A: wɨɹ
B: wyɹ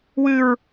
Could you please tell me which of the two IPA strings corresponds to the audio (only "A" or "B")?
A